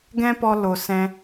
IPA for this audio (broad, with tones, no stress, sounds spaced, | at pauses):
ɡ ɛ̃˦ p ɔ˧ l o˨ s ɛ̃˧